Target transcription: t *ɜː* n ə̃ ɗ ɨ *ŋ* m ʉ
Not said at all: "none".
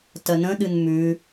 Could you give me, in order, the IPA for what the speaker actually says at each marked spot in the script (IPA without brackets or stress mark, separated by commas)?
ɜ, n